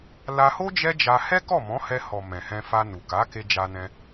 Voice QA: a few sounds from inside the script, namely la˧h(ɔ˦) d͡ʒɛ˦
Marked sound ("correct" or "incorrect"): incorrect